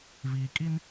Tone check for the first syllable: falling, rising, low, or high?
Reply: low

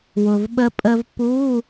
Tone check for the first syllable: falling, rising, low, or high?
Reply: low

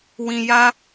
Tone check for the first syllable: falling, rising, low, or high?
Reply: low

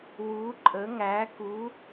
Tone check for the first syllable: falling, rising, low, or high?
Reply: rising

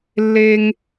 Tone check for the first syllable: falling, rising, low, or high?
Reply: high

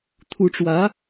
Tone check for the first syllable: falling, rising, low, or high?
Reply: rising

